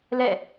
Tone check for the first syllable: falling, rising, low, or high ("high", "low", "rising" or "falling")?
falling